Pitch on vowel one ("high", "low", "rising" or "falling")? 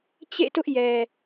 falling